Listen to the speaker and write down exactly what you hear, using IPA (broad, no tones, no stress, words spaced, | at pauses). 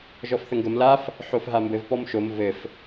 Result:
ʒɔfθəŋɡəm laf | ħofɦambɘv pɔmʃom vɘf